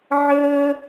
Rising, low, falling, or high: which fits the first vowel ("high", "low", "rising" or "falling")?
high